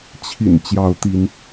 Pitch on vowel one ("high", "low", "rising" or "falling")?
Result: low